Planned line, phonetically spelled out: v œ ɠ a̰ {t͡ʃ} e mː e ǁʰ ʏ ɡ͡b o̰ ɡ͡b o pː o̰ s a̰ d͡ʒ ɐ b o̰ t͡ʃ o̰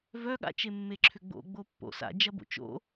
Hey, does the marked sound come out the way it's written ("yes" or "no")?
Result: yes